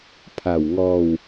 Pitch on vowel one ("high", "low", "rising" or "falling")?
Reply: low